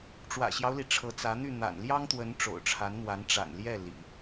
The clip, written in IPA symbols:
ʈ͡ʂ w ä̰˨˩ ɕ j ɑ˦ ʊ̯ l i˩ ʈ͡ʂʰ ɤ˧˥ t͡s ä˧˥ n̪ y˥˩ n̪ a̰˨˩ n l j ɑ˥ ŋ t̪ w ə˧˥ n ʈ͡ʂ o̰˨˩ ʊ̯ ʈ͡ʂʰ a˧˥ n n̪ w a˧˥ n ʈ͡ʂ a̰˨˩ n l j ɛ˥˩ l ḭ˨˩˦

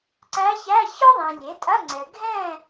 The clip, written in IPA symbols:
ǀ æ˧˥ ç æ˧˥˧ ç ɔ˥ ðˤ ĩ˨ lʲ e˩˥ tʼ ɐ˧˥˧ ŋ͡ǀ ɛ˨ ɡʱ ɛ̃˥˨

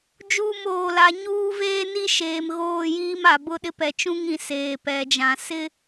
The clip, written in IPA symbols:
d͡ʒ uː˦˨ m oː˨ l a˨˦ ɲ uː˦ v eː˦ n i˦ ʃ eː˨ m ɣ oː˦˨ j iː˦ m a˨ b ʊ˦ ɗ ɪ˦ p ɛ˨ t͡ʃ ũ˦ ŋ ĩ˨ s eː˨ p ɛ˨ d͡ʒ ã˨ s ɪ˦

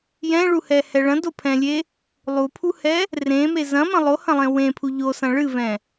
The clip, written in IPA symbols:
j ɛ̃ ɭ u h ɛ h ɛ ɭ ɐ̃ d o pʰ ɛ̃ lʲ e | lˠ u pʰ u h ɛ | r ẽ m e z ɐ̃ m ɐ̃ lˠ o h ɐ̃ lˠ ẽ w ẽ pʰ u ʎ o s ɐ̃ ɭ ɨ v ɛ̃

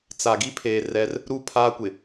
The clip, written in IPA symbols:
t͡s a˨ ɡ i˦ pʰ eː˨ r ɛ˦ r | ɾ u˦˨ pʰ aː˦ kʷ ɪ˨

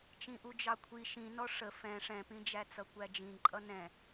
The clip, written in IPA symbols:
t͡ʃ ĩ ʔ u d͡ʒ ɑ kʷʰ i ʃ ĩ n ɔ ʂ ə f ɛ̃ ʂ ɛ̃ p ĩ d͡ʒ æ t͡s ʌ kʷ æ d͡ʒ ĩ ǃʼ ʌ n ɛ̃

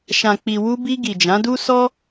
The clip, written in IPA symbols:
ʃ ã˨ k͡p i˨ w u˧ b i˧ ɡ i˨ d͡ʒ ã˨˦ d u˦ s ɔ˦

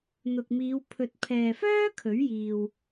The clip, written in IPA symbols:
n̪ ʊ˨ k̚ m iː˨˧ w pʰ ɵ˨ t̚ pʰ ɛː˨ f œː˥ kʰ ɵ˨˥ ɥ j iː˨ w

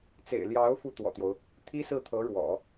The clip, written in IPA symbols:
t͡s ḛ˨˩ ɪ̯ l j ɑ˧˥ ʊ̯ f u˥˩ t̪ w ɔ̰˨˩ t̪ j o˦ ʊ̯ | t̪ʰ i˥ s ɹ̩˥˩ t̪ʰ ɤ˧˥ ɻ w ɔ̰˨˩˦

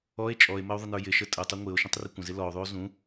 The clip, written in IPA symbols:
ɔ e̯ t͡ʃʼ ɔ e̯ m ə o̯ ðˤ ə n ə˞ j ɪ ʃ ə tʼ ə tˤ u ŋʷ ɪ o̯ ʃ ũ tˤ r ɪ kʷ ə̃ z ɪ l ɔ o̯ ðˤ u o̯ z ũ

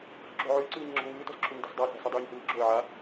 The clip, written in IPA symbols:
ɬ y ǁ o̤ ʕ y ə̯ ǀ ɯː ɲ ŋ͡ǁ ɔ̤ ŋ ɯː t ɔ̤ s ǁʰ o ɲ d ɔ̤ s dˤ a ɬ æ̤ s ɔ dˤ yː ɲ h ɯː ǁ o̤ ə̯ ʕ a

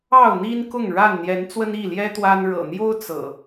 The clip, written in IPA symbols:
ɑ˥˨ ʊ̯ n̪ i˦ n k ʊ˥˨ ŋ ɻ a˥˨ n n̪ j ɛ˨˦ n t͡s w ə˦ n i˥˨ l j ɛ˦ t̪ w a˦ n ɻ ɤ̰˨˩ n̪ j o˦ ʊ̯ t͡s ɤ̰˨˩

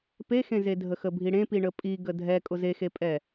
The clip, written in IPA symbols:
p e x ẽ z e dʱ ə x ə bʱ i ɽ ẽ p i ɳ ə pʼ i ɡ ə dʱ ɛ kʼ ʊ z e x e pʼ ɛ

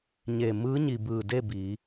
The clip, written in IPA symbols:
ɲ e˧˩ m ɯː˧˥ ɲ i˩ b ɯː˧˩ d e˥˨ b i˩˧

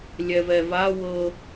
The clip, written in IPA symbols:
lʲ ɛ v ɛ v a w ɤ

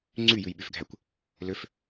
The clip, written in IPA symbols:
ŋ͡ǀ y j ʉ j ɓ y f ɡʱ æ kʷ | l ø f

